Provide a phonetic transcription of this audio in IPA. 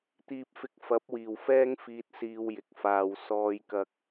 t̪ iː˧ p̚ f ɪ˧ k̚ f ɐ˨˥ p̚ w iː˨˩ w f ɛː˥ ŋ f iː˧ t̚ s iː˧ w j ɪ˨ k̚ f aː˨ w s ɔː˧ j k ɐ˧ k̚

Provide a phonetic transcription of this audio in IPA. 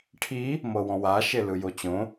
ʈʰ i | m ɤ w ɔ̃ w a ʃ e l ɯ j o t͡ɕ õ

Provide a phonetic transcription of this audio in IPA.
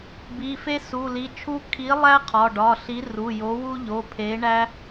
b i˩˧˩ f e˥ s u˩˧˩ l i˩˧˩ t͡ʃʰ u˥ kʰ i˨˥ lˠ æ˥ qʰ ɒ˩˧˩ ɖ ɒ˩˧˩ ɬ i˨˥ r u˩˧˩ j o˨˥ w u˥ ʎ o˩˧˩ pʰ e˨˥ ɳ æ˥

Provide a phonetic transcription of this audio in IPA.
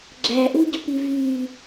ɡ͡ǁ æ ʔ u ɟ o̤ p i v y

